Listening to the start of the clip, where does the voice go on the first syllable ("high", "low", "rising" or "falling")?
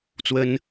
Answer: high